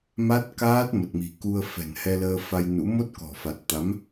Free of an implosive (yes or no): yes